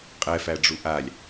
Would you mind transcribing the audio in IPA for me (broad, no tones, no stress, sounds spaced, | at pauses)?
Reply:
qʼ ɛ f æ ɖ͡ʐ u ʔ a lʲ